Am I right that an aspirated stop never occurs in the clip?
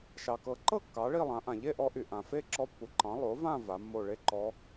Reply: yes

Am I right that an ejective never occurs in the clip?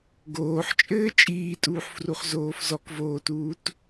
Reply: no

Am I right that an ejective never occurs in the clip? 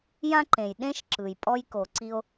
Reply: no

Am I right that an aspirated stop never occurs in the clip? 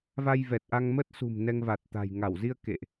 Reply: yes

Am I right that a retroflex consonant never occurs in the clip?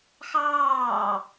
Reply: yes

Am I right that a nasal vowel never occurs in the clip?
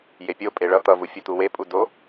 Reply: yes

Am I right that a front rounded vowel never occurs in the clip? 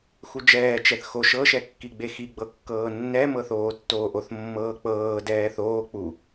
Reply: yes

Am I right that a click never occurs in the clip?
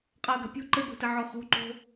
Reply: no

